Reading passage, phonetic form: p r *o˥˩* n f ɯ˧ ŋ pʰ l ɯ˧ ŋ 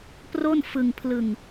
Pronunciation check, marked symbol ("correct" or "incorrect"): correct